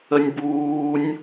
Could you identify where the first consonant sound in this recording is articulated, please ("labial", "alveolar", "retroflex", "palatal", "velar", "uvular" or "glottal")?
alveolar